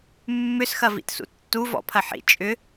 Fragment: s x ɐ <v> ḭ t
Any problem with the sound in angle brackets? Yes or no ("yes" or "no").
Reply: no